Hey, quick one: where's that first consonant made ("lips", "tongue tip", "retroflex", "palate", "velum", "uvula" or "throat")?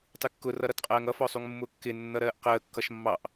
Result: tongue tip